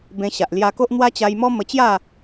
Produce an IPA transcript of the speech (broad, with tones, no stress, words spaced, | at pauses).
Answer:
bẽ˧ɕa˨ʔ lja˧ko˦ʔ n̪wa˦t͡ɕa˧jmɔ˦ mə˧t͡ɕja˥˧